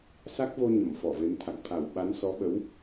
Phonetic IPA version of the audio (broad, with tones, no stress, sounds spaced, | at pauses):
s a˦˥ k̚ v o˧ ɲ ə˧˩ m f ɔ˧˩ v e˨˦ m t̪ʰ a̰˧˨ ŋ t̪ʰ a˧˩ w ɓ a˨˦ n s ɔ˨˦ ɓ ə˨˦ w